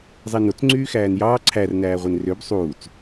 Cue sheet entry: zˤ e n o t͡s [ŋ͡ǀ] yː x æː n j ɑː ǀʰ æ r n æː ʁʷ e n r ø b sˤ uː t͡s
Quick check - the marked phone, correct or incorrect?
correct